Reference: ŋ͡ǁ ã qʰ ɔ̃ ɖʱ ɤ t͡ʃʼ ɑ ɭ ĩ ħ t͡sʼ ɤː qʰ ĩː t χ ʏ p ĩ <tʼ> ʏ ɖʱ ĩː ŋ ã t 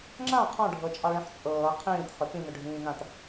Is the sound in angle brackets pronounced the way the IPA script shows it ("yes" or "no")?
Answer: no